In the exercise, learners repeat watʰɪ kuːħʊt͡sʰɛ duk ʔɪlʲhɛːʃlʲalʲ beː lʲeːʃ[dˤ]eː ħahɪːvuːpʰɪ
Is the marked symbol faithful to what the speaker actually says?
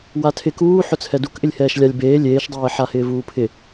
yes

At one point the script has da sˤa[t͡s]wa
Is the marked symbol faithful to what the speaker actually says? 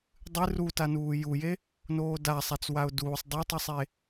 yes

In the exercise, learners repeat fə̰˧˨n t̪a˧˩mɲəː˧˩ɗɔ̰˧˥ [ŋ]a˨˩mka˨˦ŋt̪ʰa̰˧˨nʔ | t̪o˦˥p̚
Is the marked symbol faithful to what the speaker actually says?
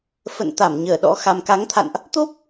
no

